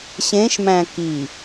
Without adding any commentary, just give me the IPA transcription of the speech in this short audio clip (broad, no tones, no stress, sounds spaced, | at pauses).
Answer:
ɕ ẽ ʃ m æ̃ k i